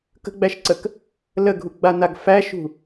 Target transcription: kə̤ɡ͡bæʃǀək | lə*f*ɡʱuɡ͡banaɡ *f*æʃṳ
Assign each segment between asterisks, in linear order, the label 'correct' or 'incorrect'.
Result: incorrect, correct

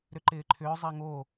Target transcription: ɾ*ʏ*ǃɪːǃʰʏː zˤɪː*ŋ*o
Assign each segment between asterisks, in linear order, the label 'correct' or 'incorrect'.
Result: correct, correct

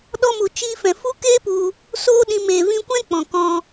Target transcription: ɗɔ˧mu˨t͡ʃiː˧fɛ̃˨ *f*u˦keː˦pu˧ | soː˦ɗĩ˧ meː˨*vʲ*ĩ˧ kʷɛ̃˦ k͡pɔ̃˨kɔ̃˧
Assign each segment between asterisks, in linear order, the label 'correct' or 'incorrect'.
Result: correct, incorrect

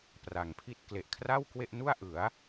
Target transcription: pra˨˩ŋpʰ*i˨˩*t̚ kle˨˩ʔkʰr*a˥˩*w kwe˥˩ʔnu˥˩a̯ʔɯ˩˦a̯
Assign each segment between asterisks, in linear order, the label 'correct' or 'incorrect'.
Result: incorrect, correct

